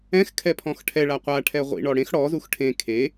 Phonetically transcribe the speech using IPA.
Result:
ɛ̃ x kʰ ɛ pʰ ɔ̃ x ʈʰ ɛ ɭ a qʷ a ʈʰ ɛ ʁʷ ḭ ɳ ɔ ɽ ẽ x ɽ ɔ z u x ʈʰ ẽ kʰ e

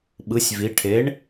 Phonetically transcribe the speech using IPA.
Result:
ɓ ɯ˩˧ sʲ v i˩˧ ʈʰ e˩˥ ɳ

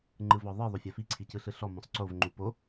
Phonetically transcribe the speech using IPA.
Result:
ŋ͡ǃ ɯ v ɔ ðˤ ɯ ðˤ o fʲ a f i ǀʰ i c ɯ ɬ ɯ ɬ ɔ m ɔ̃ sˤ ǀ o v ŋ͡ǃ u p o

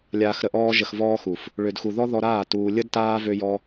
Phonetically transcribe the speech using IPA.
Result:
lʲ aː˧ x ɾ ə˧ ʔ ɔː˦ ʒ ə˧ x v ɔː˦ x u˨ f | ɭ ø˧ d x u˧ ð ɔ˦ ð ɔ˧ ɾ aː˦˨ t uː˧ lʲ ə˦ d t aː˦ v ø˦ j ɔ˦

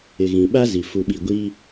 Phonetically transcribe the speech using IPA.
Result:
ɪ˨ ɣ ĩ˨ ɓ a˦ z i˨ f u˨ ɓ i˨ ɡʷ i˦

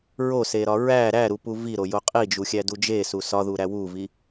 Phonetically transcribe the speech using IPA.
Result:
ɹ o s e ɾ ɒ ɹ æ ɾ æ ɾ u p u v i ɾ o j o qʼ i d͡ʒ u xʲ æ d u d͡ʒ e s u s ɒ ð u ɾ æ w u v i

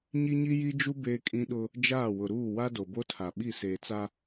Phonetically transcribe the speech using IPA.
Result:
ɲ i˦ ɲ i˦ j i˦ d͡ʒ u˦ b eː˦ kʼ ĩ˦ ɗ ʊ˦ | d͡ʒ aː˦˨ w ʊ˨ ɾ uː˦˨ w a˦ d o˨ b o˦ tʰ a˨ ɓ i˦˨ s eː˨ t͡s a˦

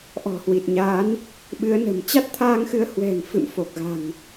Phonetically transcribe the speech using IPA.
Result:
ʔ ɔ̤˨˩ h w i˨˩ t̚ ɲ aː˨˦ n | ɓ ɨ˨˦ ə̯ n ə̤˨˩ m t͡ɕ a˦˥ t̚ t̪ʰ aː˧ ŋ x ɨ˨˦ ə̯ h w ɛ̤˨˩ ŋ f ɨ̰˧˨ m f o˨˩ k̚ ɣ a̤˨˩ ŋ

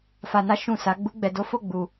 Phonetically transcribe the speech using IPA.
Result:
f a˧ n a˦ ʃ ũ˦˨ s a˨˦ ɡ͡b u˦ ɡ͡b ɛ˧ d o˦ f o˦˨ ɡ͡b u˨

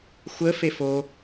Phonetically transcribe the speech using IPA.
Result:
xʷ ə f e f o

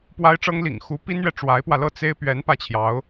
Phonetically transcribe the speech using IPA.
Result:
p w a˥ ɪ̯ ʈ͡ʂ ɤ˥ ŋ l ḭ˨˩ ŋ x u˧˥ p i˥ n ɥ ɛ˨ ʈ͡ʂ w a˧˥ ɪ̯ p w ä˧ l ɤ˥˩ t͡s e˥ ɪ̯ p ɥ ɛ˧˥ n p ä˥˩ t͡ɕʰ j ɑ˧˥ ʊ̯

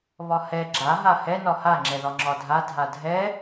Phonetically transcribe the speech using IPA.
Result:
β ɒ h ɛ ɡ͡ǁ a ɦ a h ɛ n ɒ h a ŋ͡ǁ ɛ ð ɒ ŋ͡ǁ ɒ dʱ a dʱ a dʱ ɛ

